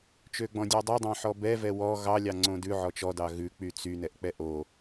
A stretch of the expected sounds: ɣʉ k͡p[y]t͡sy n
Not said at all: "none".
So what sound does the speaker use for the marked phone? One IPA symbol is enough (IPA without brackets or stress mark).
y